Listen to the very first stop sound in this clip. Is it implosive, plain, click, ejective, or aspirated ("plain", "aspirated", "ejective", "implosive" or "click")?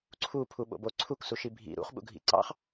click